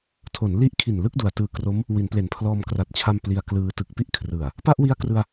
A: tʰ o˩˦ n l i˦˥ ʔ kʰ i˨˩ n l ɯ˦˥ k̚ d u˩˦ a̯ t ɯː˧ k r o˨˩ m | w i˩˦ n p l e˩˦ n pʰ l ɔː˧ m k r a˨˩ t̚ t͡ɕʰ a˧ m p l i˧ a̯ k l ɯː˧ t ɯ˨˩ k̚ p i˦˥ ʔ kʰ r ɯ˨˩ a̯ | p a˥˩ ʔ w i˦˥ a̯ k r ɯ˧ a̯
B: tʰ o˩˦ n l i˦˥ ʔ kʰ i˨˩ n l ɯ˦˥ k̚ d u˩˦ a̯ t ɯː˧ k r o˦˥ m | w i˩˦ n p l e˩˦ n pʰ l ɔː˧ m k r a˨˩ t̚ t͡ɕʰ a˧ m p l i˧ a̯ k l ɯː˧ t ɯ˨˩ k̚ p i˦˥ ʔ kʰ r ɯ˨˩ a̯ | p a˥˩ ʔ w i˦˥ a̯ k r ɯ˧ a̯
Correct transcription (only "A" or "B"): B